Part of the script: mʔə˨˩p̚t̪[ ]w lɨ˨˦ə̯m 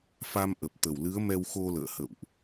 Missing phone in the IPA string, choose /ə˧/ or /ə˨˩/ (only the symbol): ə˨˩